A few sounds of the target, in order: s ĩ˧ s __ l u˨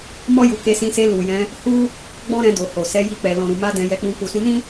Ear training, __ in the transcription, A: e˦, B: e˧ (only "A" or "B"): B